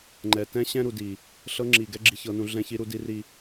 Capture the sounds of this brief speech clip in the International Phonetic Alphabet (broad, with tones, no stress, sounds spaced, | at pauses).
ŋ͡ǃ ɛ˨ t ɛ̃˦ ɕ ɛ̃˦ ɾ u˨ d i˨ | ɬ ɤ˦ ŋ͡ǁ i˨ ɡ ɛ˦ ɡ͡ǁ i˨ ç ɤ˨ n ũ˨ ɮ ɛ̃˦ ç i˦ ɾ u˦ d i˦ r i˨